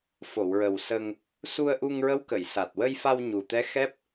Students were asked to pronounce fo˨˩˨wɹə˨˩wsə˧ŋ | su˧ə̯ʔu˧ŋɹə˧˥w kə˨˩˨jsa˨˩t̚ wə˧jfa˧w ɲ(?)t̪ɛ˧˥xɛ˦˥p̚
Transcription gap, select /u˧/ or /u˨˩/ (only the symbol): u˨˩